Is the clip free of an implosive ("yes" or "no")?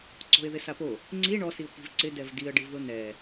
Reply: yes